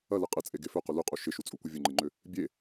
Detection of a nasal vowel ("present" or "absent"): absent